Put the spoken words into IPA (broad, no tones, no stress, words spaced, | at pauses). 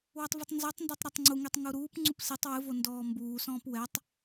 wɛtˤvitˤnzotˤndotˤ ɾɛtˤŋ͡ǀuŋetˤ ŋuɾuːpŋ͡ǀup sitˤ wɨvo ndɔːmbuːsɔ̃ːp wɛtˤ